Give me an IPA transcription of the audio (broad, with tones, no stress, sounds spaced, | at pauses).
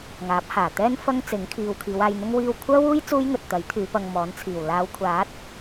ŋ aː˨˥ p̚ h aː˨˩ t̪ ɛː˥ n f ɐ˥ ŋ t͡s ɪ˨˥ ŋ kʰ iː˨ w kʰ iː˨˧ w aː˧ j n̪ ʊ˥ ŋ w iː˧ w kʷʰ œː˥ w uː˥ j t͡s uː˥ j ŋ ɵ˨ t̚ t̪ ɐ˨˥ j t̪ʰ yː˨˧ p ɐ˧ ŋ m ɔː˨˥ n t͡sʰ iː˨˩ w l aː˨˧ w kʷʰ aː˨˥ t̚